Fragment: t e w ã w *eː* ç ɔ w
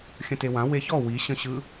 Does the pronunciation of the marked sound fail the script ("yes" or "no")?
yes